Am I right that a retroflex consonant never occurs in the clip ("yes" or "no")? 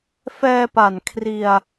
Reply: yes